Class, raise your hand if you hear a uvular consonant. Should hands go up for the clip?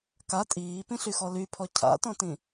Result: no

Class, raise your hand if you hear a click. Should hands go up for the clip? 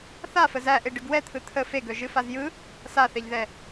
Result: no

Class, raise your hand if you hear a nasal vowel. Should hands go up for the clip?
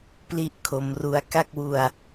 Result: no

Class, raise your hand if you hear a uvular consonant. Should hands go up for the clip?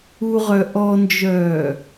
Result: yes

